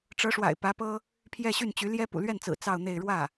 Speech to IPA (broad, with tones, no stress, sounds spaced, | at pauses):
ʈ͡ʂ ɤ˧˥ ʂ w a̰˨˩ ɪ̯ p ä˧˥ p ɤ˥ | pʰ j ɛ˥˧ ɕ y˥˩ n t͡ɕ y˧˥ l j ɛ˥ p ṵ˨˩ l ɥ ɛ˥˩ n t͡s ɹ̩˨˩ t͡s ɑ˥˧ ʊ̯ n̪ e˥˧ ɪ̯ ɻ w ä˥˩